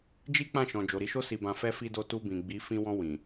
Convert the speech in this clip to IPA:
d͡ʒi˦k͡pã˦˨ʃɔ̃˨ d͡ʒo˨ɾi˨˦ʃo˦ si˧bã˧ fɛ˦fi˦do˦ tu˧bĩ˨ ɡ͡bi˨˦ fĩ˧wɔ̃˧ wĩ˨

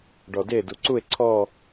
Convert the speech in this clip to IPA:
ɖɔde duǀue̯ ǀʰɔ

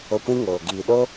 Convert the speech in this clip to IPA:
o˧kʷĩ˦ŋoː˨ ɡiː˨ɗoː˦

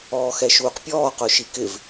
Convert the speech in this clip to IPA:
ɔːxɛʃuːqpʲɔː qʊːʃikɪv

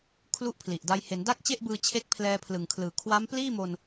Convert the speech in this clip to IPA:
kʰlu˦˥ʔpʰli˨˩ʔda˧j he˩˦nda˥˩k̚t͡ɕe˥˩ʔbɯː˧ t͡ɕʰe˥˩k̚ pʰlɛː˧pʰlɯ˨˩ŋkʰlɯː˨˩ kʰwa˦˥mpliː˥˩mo˧n

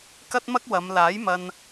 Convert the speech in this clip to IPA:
kɐ˥t̚mɐ˥k̚ wɐ˨˧m laː˨˥jmɐ˧n

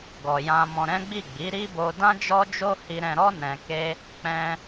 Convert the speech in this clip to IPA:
ɡɔ˨jã˧mɔ̃˧ ɾɛ̃˦ɡ͡bi˦˨ ɡ͡bi˨˦ɾi˦bo˧ dã˦d͡ʒɔ˦d͡ʒo˦ hi˧ɾɛ̃˧ ɾɔ˦ nɛ̃˧ke˦ | k͡pɛ̃˧

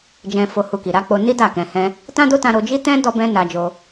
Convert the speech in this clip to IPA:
d͡ʒɛ̃˧ fo˧ hu˦ki˧ ɾa˦ k͡po˧ni˦ da˦˨kɛ̃˧ hɛ̃˧ | tã˦do˦tã˧ ɾo˧d͡ʒi˦tɛ̃˦ dɔ˦bɛ̃˦ na˧d͡ʒo˧

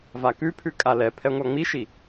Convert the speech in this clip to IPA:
vakʉpʰʉ kʼalɛ pʰɛŋʷaŋ͡miʃi

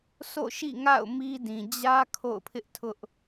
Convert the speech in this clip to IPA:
sʰo̰˦˨ʃḭ˦˨ŋa̰˦˨ʊ̯ mi˦dĩ˨ d͡ʑä˦ kʰo̰˦˨ʊ̯pʰɪ˦ʔtʰʊ˦ʔ

